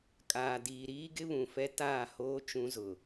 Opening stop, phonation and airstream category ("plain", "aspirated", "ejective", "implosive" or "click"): ejective